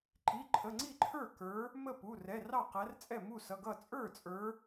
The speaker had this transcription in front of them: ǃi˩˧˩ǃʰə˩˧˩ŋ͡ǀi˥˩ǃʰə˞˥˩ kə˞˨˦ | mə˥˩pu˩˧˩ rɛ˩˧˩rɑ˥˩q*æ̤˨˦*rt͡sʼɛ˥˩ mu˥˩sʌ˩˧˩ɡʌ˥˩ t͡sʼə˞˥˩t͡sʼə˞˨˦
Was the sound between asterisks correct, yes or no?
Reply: no